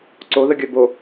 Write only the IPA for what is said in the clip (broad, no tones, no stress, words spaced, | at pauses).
ǀo ðəɡʲœbo